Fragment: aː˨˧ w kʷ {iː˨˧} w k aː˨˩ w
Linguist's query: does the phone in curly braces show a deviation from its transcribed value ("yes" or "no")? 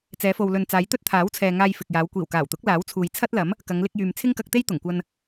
yes